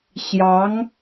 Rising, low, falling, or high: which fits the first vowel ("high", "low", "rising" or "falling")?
rising